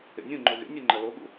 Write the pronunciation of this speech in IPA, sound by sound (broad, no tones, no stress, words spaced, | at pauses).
ḛnʲũŋ͡ǃo ɣḛnʲe ŋ͡ǃɐloɠṵ